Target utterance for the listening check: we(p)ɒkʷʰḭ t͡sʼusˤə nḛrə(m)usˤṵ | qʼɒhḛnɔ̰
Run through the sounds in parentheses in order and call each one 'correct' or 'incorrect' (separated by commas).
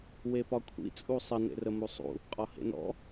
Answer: correct, correct